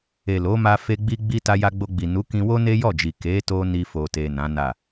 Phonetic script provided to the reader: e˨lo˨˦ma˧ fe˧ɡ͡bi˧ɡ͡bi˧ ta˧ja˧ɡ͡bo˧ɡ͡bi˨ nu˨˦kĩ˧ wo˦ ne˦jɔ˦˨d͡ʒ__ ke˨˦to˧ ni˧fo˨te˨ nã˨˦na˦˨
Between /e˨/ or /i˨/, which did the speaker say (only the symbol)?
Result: i˨